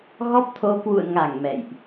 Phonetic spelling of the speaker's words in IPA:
ɣɔ˦˥p̚ t̪ʰo˧ kwṵ˧˨ə̯ŋa˧˩ŋ mɛ̰˧˨jʔ

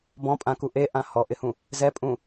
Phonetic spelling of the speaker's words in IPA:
bɔ̃pʼãku ʔeʔã hɔʔɪhũ | zɛpʼũ

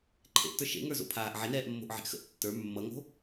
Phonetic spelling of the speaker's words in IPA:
ǃʰḛʔtə˞ ʃḛŋə˞zo̰pʰaːʔ ʕenɛːʔmːo̤ʔʕe̤ʔ xə̰ʔ tːə˞ mːʌŋo̤

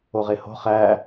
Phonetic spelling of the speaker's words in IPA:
oʁeho̤ χæ

